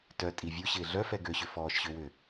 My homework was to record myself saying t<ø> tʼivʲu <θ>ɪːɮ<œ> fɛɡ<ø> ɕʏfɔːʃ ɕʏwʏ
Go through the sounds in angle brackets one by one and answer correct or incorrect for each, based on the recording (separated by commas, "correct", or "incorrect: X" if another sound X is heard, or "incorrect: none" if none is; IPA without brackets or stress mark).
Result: incorrect: œ, incorrect: ɕ, correct, correct